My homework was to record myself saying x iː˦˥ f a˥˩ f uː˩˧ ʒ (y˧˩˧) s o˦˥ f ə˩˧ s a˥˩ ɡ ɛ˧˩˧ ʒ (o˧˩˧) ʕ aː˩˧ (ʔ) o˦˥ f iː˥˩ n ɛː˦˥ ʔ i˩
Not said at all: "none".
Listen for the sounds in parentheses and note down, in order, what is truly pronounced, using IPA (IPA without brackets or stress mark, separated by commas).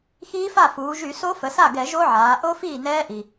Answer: y˧˩˧, o˦˥, ʔ